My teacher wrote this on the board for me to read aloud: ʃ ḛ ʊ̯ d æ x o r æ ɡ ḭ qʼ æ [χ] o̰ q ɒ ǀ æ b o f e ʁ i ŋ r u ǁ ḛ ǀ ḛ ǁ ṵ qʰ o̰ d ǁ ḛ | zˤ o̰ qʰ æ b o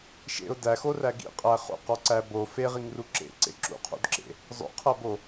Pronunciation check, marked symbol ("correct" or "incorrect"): correct